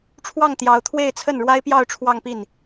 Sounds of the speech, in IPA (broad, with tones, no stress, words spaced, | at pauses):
ʈ͡ʂʰwɑ˥˩ŋ t̪jɑ˧˥ʊ̯t̪ʰwe˥˧ɪ̯t͡sʰə˥˩n ɻwa˥ɪ̯pjɑ˥˧ʊ̯ ʈ͡ʂʰwɑ˥˧ŋpi˥˩n